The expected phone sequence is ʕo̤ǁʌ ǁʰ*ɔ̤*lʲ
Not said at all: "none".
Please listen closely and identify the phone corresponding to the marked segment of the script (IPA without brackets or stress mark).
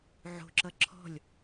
ɔ̤